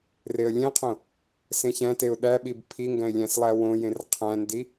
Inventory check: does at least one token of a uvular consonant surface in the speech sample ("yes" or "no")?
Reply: yes